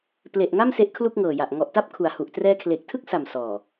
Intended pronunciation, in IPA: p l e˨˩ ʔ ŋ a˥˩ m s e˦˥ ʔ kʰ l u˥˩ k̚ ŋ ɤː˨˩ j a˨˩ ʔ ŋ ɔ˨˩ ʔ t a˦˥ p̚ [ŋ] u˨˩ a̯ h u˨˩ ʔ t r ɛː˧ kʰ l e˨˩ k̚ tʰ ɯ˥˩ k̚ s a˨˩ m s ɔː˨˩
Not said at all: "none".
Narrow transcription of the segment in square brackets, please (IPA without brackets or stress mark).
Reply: kʰ